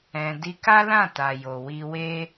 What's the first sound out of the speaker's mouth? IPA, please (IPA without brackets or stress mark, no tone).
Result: ɛ̃